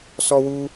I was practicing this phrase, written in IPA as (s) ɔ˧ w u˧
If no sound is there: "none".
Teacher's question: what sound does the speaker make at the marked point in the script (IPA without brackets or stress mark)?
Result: s